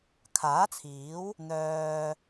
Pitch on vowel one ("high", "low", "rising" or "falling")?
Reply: rising